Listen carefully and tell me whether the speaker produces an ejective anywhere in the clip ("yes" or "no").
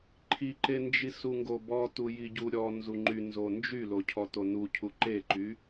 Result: no